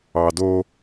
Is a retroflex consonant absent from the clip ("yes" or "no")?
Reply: yes